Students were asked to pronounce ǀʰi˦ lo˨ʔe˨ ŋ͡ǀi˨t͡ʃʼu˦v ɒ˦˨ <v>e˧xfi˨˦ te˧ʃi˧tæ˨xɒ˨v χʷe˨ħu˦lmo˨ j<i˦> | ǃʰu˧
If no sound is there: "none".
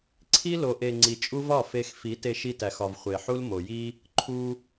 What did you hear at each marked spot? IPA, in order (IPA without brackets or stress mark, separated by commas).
f, i˦